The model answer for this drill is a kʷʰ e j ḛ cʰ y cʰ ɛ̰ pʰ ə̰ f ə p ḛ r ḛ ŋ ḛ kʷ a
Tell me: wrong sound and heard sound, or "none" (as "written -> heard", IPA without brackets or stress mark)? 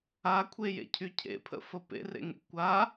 ɛ̰ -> ḛ